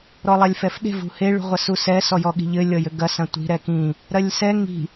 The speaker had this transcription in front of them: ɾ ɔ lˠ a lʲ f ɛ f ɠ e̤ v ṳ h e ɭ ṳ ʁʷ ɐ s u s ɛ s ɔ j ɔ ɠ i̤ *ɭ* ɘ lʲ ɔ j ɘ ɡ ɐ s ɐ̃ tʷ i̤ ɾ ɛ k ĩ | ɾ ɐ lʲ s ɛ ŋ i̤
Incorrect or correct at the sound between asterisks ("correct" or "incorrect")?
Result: incorrect